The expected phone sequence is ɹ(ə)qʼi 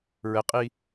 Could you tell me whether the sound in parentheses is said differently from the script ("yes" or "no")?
no